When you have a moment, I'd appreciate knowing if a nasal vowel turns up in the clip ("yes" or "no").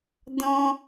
yes